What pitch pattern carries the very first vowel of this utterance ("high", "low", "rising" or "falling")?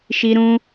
high